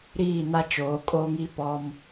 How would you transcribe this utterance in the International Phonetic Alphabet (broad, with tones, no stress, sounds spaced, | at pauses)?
ɾ iː˦˨ n a˦ t͡ʃ oː˨˦ kʼ oː˦ ŋ i˦ p ɔ˦ m